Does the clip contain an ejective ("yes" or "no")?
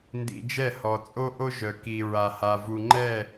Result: yes